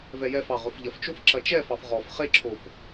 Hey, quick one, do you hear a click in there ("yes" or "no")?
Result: yes